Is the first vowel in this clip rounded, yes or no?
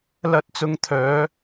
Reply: no